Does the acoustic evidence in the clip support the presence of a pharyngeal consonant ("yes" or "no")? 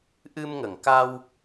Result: no